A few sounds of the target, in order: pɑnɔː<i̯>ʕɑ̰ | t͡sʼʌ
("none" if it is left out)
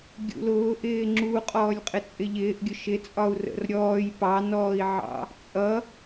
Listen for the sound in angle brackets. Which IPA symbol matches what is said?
i̯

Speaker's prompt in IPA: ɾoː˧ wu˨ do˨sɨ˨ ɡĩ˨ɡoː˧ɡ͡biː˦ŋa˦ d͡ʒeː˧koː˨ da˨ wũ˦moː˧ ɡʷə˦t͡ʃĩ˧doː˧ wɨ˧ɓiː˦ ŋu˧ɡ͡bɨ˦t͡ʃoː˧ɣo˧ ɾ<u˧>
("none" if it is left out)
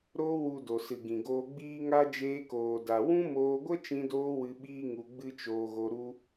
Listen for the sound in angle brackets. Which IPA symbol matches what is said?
u˧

